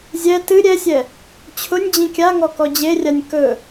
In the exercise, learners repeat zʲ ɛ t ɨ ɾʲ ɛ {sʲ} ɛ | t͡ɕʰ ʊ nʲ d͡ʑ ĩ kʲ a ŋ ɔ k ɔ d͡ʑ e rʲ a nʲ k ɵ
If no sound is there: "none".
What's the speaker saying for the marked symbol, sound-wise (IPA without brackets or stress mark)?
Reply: sʲ